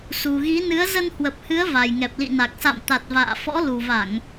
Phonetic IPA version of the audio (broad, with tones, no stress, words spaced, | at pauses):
su˨˩ɣi˨˦ nɨ˨˦ə̯zə˧nhwə˨˩p̚hɨ˨˦ə̯ va˨˩jŋɛ˨˩p̚lḭ˧˨na˨˩k̚ sa̰˧˨mt̪a˨˩t̚ va̰ː˧˨fɔ̰˧˥ lu˨˩va˧˩˨ŋ